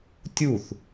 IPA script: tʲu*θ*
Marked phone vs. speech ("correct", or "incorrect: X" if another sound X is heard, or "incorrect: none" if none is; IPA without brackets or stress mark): correct